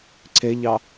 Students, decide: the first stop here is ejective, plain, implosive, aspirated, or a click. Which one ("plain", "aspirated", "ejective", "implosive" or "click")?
click